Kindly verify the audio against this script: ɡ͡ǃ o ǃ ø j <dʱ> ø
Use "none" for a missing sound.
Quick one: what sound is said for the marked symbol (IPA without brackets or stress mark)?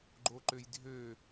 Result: dʱ